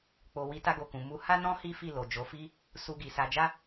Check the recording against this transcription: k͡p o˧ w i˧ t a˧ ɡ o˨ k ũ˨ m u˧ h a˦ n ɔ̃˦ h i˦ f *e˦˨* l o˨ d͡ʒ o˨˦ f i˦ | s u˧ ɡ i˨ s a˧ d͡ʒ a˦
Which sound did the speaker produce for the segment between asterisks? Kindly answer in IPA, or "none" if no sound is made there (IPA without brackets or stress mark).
i˦˨